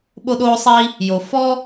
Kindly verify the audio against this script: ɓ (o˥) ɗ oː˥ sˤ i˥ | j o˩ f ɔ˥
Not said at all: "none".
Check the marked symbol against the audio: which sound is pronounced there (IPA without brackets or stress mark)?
o˥